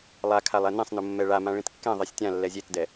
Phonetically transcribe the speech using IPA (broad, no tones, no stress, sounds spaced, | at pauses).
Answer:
lˠ a kʰ a lˠ ɛ n ẽ sˤ n ʊ mː ɛ ɭ a m ã ɭ ĩ t kː ɛ̃ ðˤ e sʲ tʲ ã lː ɛ zʲ e t d ɛ